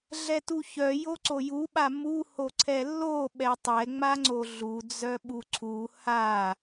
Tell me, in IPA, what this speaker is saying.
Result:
ɮ ɛ t u ç œ j o ǀ o j u ɓ a m u h o ǀʰ ɛ lː o ɓ ɛ tˤ ɛ ŋ͡m a ŋ͡ǀ o ɮ u d͡z œ ɓ u ǀʰ u h a

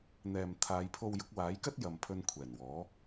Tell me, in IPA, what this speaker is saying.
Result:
n̪ ɛː˨ m t̪ʰ aː˨˧ j pʰ o˧ w j ʊ˨˥ k̚ w aː˨˥ j k ɐ˥ t̚ j ɐ˨ m pʰ ɵ˧ n kʷʰ ɛː˨˩ n w ɔː˨˥

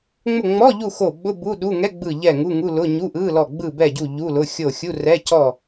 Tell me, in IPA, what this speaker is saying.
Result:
ŋ͡m ʊ˦˨ ŋ͡m ɔ˧˥˧ ʎ u˦˨ x o˦˨ ɓ ʊ˧˥˧ b u˧˥˧ ɗ u˧˥˧ ŋ ɛ˧˥˧ ɡ͡b ɯ˦˨ ʎ ɛ˦˨ ŋ u˧˥˧ ŋ u˧˥˧ l ʊ˧˥˧ ɲ u˧˥˧ ʔ ɯ˧˥˧ l ɔ˦˨ ɡ͡b ɯ˦˨ b ɛ˦˨ ɟ u˦˨ ʎ u˧˥˧ l ʊ˧˥˧ xʲ o˦˨ xʲ u˧˥˧ r ɛ˧˥˧ c ɔ˦˨

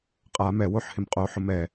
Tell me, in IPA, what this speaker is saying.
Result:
qʼ a m ɛ w o ħ h ɪ m qʼ o ħ ʊ m ɛ

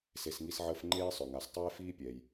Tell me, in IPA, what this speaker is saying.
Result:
s e˨ s ŋ i˦ s ʕ əː˦ f ŋ͡ǃ eː˥ sˤ œ˩ ŋ a˩ s tˤ eː˥ f iː˥ pʲ ɛ˩ j

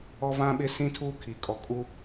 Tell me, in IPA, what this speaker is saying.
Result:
ɔ˦ v ã˦ ɓ ɪ˦ s ĩ˦ tʰ uː˦ kʰ i˨ kʼ ɔ˨ kʼ u˦

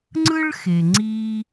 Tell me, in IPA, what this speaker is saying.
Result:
ŋ͡ǀ ɯ˥ ɭ x e˩ ŋ͡ǀ iː˧

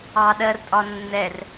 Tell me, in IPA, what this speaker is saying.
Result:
ɑ ɗ ɜ r tʼ ɒ nː ɛ r

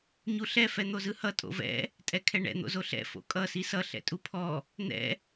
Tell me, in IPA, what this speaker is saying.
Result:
ɲ u ɬ ɛ f ɛ n̪ o z ɯ h ʌ tʼ o̰ v ɛ̰ | tʼ ɛ kʰ ɛ ɳ ɛ̰ n̪ o̰ z o ɬ ɛ̰ f o̰ kʼ ʌ s i s ʌ ɬ ɛ̰ tʼ u pʰ ɔ | n̪ ɛ̰

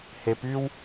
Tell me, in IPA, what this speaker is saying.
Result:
h e p y w

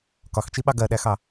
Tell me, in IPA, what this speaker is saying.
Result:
k ɒ x t͡ʃ i ɓ ɑ ɡ ɜ ɗ æ x ɑ

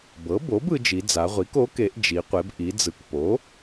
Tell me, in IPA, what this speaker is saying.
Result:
b ɤ˩˥ b o˩˥ b ɯ˩˧ d͡ʒ i˩˧ d͡z a˩˧ ʁʷ i˩˥ k o˩˥ k e˩˧ ʔ d͡ʒ i˩˧ qʷ e˩˧ b ʔ i˩˧ d͡z ɯ˩˥ k p o˩˥

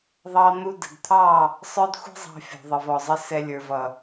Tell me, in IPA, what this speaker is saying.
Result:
ðˤ ɑ˧ n̪ u˧ d ə̤˨ d t̪ʰ ɑ˦˨ | sˤ ə˞˦ d xʷ ɛ̤˦ zˤ ɑ̤˧ fʲ ɔ̤˨ ðˤ ə˨ v ɔ˨ zˤ ə˧ s ɛ˨ lʲ ə˞˨ v ʌ˨

